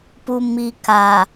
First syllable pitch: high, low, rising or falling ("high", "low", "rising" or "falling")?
low